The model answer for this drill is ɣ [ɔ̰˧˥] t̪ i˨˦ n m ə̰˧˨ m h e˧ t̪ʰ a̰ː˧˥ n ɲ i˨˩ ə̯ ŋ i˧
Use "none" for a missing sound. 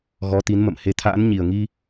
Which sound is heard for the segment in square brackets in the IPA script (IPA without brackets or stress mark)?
ɔ˨˦